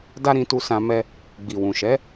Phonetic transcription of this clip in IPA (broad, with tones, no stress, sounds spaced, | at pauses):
d a˦ ɾ ĩ˧ t u˧ s ã˧ m ɛ˧ | ɡ͡b i˨ w ũ˨ ʃ ɛ˨˦